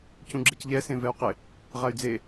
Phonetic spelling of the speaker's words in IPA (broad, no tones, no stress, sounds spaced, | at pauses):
c ũ ɡ͡ǁ e c ʎ ɛ s ẽ v ɛ u̯ q ɪ | ʁ a y̯ d͡z e